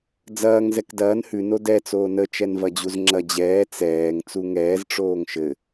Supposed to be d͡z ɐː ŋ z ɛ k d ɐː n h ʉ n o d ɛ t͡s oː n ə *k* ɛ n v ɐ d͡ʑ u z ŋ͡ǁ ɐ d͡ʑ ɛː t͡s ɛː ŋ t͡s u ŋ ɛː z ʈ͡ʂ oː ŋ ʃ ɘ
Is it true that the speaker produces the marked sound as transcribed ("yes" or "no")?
no